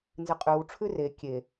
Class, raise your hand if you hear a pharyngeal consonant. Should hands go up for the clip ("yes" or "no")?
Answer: no